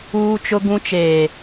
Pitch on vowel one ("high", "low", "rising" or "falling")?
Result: high